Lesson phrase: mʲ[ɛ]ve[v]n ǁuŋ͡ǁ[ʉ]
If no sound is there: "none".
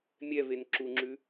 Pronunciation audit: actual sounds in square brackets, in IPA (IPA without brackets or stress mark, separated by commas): ɛ, none, ʉ